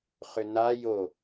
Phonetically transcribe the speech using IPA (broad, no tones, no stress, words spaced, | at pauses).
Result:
χʏna jo